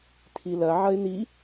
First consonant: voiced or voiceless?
voiceless